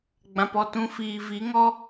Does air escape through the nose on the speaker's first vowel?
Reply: yes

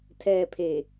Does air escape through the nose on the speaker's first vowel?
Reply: no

